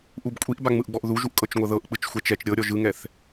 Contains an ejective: yes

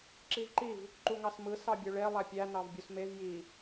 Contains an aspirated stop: no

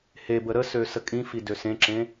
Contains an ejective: yes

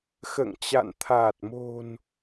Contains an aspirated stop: yes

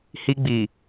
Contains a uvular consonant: no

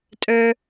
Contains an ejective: yes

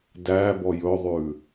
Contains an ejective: no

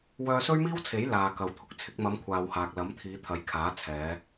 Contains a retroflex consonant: no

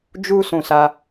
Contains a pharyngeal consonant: no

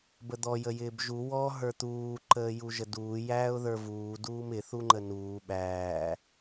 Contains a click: yes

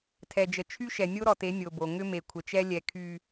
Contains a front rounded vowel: yes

